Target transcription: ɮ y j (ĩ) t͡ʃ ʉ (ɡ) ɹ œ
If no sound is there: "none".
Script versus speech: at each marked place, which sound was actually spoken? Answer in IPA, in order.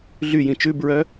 ĩ, b

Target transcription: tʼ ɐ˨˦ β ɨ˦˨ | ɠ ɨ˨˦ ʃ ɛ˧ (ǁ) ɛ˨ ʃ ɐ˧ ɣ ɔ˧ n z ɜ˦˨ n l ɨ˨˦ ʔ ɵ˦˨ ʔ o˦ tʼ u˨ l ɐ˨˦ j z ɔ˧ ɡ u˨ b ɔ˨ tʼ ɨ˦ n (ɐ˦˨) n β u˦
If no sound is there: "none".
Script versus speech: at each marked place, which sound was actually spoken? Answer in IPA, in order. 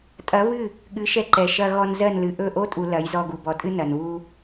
ǃ, ɐ˨

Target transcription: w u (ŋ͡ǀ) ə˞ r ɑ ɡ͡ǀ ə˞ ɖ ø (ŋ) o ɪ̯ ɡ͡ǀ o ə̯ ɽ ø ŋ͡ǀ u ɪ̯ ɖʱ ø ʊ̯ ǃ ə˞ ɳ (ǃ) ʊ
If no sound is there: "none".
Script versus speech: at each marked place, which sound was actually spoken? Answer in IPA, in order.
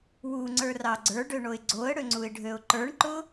ŋ͡ǀ, ɳ, ǃ

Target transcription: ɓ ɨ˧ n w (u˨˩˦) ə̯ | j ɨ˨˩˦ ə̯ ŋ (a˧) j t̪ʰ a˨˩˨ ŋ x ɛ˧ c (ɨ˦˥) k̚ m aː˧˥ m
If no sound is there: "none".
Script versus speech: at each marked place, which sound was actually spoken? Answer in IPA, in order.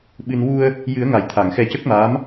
u˧, a˨˩˨, ə˦˥

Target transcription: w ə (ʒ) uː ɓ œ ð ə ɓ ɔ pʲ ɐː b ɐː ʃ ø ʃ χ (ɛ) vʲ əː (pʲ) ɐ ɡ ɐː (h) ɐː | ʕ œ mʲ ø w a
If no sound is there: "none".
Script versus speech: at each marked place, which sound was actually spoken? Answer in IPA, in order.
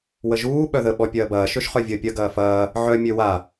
ʒ, œ, pʲ, f

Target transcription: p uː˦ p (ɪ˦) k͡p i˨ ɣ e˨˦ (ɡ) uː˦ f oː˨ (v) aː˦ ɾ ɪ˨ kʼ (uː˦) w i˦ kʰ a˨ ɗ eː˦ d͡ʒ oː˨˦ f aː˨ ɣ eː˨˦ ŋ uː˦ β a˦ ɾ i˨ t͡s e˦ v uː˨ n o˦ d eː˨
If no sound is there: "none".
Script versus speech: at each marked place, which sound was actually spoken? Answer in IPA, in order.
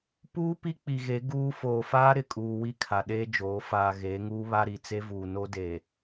i˦, ɡ, f, uː˨

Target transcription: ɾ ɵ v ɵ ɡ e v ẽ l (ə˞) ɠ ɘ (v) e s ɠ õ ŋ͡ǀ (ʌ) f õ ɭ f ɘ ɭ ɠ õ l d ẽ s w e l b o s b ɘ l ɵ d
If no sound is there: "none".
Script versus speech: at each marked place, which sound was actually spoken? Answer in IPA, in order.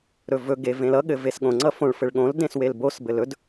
ʌ, v, ʌ

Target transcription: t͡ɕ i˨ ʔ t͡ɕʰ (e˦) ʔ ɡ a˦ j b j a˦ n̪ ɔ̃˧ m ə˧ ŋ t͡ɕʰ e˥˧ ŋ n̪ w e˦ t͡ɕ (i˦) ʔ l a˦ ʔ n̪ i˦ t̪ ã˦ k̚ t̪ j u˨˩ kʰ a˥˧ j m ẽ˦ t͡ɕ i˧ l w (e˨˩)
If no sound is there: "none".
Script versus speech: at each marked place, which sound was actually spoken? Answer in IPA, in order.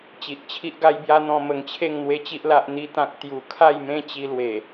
i˦, i˦, e˨˩

